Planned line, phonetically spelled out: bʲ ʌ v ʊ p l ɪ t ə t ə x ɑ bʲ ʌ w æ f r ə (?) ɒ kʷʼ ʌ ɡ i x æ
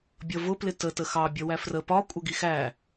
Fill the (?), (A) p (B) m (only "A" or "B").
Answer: A